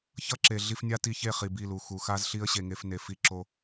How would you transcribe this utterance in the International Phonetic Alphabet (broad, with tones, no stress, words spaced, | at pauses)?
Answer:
çʌ˦ǁe˨ ɮi˧fnʲa˦ ti˧çe˦˨χi˨ bi˦˨lu˨ xu˨xa˦zɬi˦ə̯ ɕe˧ŋe˦fne˧ fi˦ǁo˦